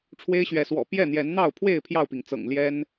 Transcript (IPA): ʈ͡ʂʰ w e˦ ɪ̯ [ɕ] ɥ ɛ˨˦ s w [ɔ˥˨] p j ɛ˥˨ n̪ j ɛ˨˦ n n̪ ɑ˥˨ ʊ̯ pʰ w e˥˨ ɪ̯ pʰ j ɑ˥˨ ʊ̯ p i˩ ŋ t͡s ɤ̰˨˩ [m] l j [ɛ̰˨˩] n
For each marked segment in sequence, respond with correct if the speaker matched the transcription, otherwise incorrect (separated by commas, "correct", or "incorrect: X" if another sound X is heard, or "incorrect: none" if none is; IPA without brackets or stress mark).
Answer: correct, incorrect: ɔ̰˨˩, incorrect: ŋ, incorrect: ɛ˦